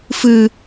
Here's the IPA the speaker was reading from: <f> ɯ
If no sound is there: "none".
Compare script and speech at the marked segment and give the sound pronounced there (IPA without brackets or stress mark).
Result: f